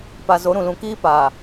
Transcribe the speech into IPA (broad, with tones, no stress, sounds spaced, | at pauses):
p a˨ z o˨˦ ɾ ũ˨ l ũ˨ k iː˦ p aː˨